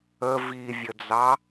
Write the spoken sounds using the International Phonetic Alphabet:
ə v i vʲ ə d͡z ɑ

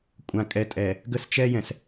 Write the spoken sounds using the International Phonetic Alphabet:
kʷʼ ã˨ kʼ ɛ˨ tʼ ɛ˨ | ɡ ə˦˨ s t͡ʃ ɛ˦ j ɛ̃˨ s

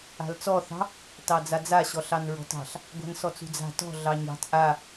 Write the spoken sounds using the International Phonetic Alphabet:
a̤ l t͡s ɔ θ ɑ̤ | t ɑ d͡z a d͡z a ɕ ɔ ɬ ɑ n ɹ ɔ̤ t ɑ̤ ɬ | ɡʷ a̤ n s ɔ t͡s ṳ d͡z a̤ t ɔ̤ ɮ ɑ ɲ ɑ̤ t ʔ a

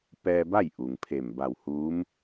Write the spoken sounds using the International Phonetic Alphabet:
p ɛː˧ b a˥˨ j ʔ u˩ ŋ pʰ e˧˩ m b a˧˩ w h uː˧˥ m

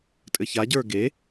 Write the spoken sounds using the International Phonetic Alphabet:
tʼ ɘ ç a ɟ ə˞ ɡ e

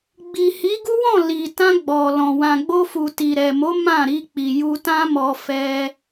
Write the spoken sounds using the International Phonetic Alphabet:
ɡ͡b i˨ h i˨˦ ɡ u˦ w ɔ̃˦˨ l i˨ t ã˧ ɡ͡b ɔ˨ l ɔ̃˨ w ã˨ ɡ͡b o˧ f u˨ t i˨ ɾ ɛ˨ m o˨˦ m ã˦˨ ɾ i˧ k͡p i˨ j u˧ t ã˦ m ɔ˧ f ɛ˧

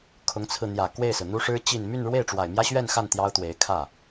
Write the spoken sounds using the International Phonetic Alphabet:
kʰ ʊ˧˥ ŋ t͡sʰ ɹ̩˧ n̪ j ä˨˩ k w e˥˩ ɪ̯ s ɹ̩˩ n̪ u˥ ʂ ɻ̩˥ t͡ɕ i˥˧ n m y˥˧ n ɻ w e˥˩ ɪ̯ ʈ͡ʂ w a˨˩ ɪ̯ m j ä˥ ɕ ɥ ɛ˥˧ n x a˥˩ n t̪ j ɑ˥ ʊ̯ t̪ w e˧˥ ɪ̯ kʰ ä˥˩

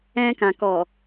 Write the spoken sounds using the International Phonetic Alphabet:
ɛ̃˧ k ã˨ k ɔ˨

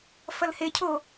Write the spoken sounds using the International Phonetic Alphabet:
f ɐ l h e cʰ o

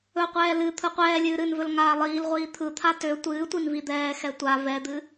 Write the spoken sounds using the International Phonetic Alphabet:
ɵ qʷ ɛː l ɨ t̪ʰ ɯ qʷ ɛː lʲ ɨː ɾ ɨ n v ɵ l ŋ aː lˠ iː l ʁʷ iː t̪ʰ ɯ t̪ʰ a t ø tʷ ɨː tʷ i n v i d̪ ɛː x ɛ tʷ a v ɛ d̪ ɨ

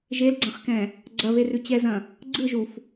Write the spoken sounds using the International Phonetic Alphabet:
ʒ e l ɡ͡ǀ ɐ̃ χ k ɛ̃ | ɡ͡ǀ ɐ β e r ʉ t͡ɕ ɛ z ɐ̃ | ɡ͡ǀ ɯ ʒ u f

